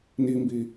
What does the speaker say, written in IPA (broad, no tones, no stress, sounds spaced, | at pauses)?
n i m b i